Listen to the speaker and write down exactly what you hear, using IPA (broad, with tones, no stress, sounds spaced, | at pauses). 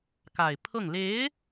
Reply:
k a˨˩ ɪ̯ pʰ ɤ˥˩ ŋ l e˧˥ ɪ̯